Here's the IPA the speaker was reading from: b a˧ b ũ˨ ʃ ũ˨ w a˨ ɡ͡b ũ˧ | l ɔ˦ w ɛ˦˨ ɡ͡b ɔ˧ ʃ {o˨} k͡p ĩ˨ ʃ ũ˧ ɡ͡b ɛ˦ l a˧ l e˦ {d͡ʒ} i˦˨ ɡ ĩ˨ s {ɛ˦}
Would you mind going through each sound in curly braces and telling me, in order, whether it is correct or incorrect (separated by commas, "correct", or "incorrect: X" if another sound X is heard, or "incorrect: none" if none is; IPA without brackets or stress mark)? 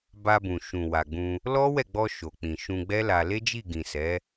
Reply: correct, correct, incorrect: ɛ˨˦